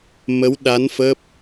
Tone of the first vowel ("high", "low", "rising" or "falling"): rising